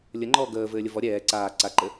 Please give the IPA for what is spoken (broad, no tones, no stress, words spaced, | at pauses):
lʲəŋ͡ǃɔː ɡəː vɘːlʲəvɔ ɾʲɛː ǀaː ǀaǃɘ